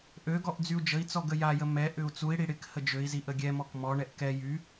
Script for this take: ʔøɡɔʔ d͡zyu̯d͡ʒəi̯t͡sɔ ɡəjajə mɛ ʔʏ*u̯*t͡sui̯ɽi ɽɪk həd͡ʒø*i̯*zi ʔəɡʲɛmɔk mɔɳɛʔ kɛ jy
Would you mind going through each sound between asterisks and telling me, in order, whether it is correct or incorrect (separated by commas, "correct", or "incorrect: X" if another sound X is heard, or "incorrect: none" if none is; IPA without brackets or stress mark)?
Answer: correct, correct